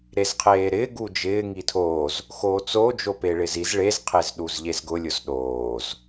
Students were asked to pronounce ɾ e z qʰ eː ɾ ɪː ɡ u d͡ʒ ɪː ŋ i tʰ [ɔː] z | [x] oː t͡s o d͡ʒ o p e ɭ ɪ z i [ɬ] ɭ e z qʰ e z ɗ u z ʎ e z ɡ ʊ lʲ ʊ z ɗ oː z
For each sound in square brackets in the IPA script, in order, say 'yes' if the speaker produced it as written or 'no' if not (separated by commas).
no, yes, no